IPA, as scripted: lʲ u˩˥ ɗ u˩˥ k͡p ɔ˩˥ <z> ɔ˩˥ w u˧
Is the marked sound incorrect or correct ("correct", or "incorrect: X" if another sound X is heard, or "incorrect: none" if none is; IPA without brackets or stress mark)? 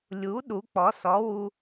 incorrect: s